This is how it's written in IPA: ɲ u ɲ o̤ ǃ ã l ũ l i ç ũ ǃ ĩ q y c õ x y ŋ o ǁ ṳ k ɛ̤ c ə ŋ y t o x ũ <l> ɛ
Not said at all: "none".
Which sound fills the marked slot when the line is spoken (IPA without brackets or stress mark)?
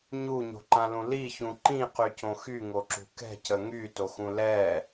l